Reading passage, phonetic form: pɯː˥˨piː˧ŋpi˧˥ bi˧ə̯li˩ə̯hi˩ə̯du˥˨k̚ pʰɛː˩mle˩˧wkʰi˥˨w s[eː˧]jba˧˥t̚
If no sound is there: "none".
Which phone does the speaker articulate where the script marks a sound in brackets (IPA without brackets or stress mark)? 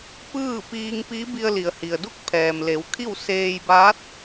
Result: eː˧